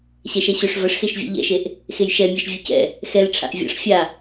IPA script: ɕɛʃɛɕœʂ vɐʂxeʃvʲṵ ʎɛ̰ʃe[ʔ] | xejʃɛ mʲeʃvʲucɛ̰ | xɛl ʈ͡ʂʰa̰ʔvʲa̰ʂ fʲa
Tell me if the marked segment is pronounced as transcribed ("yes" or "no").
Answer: yes